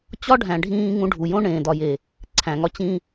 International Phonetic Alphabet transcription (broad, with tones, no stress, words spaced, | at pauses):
t͡ɕɒ˦ɖʱæ̃˨ɖʱĩː˧ ŋũ˧ɖʱu˨jõ˦ ɳẽː˨dɒ˨je˨ | ǀʰæ̃˨ŋɒ˧ t͡ɕĩ˧